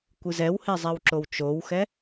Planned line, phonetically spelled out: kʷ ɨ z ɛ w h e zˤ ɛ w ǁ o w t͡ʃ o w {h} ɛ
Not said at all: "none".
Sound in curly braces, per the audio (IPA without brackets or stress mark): x